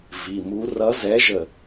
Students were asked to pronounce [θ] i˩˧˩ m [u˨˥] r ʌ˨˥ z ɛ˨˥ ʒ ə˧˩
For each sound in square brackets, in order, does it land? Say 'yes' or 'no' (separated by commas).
no, yes